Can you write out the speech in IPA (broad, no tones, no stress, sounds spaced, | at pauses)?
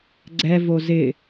ɡ͡ǀ ɛ v o z ɪ